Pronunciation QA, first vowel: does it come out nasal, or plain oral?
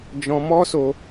nasal